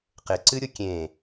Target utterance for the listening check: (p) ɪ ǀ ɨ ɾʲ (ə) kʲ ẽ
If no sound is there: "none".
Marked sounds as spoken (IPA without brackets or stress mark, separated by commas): q, ʊ